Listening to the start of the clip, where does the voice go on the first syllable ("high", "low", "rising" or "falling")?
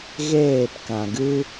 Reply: falling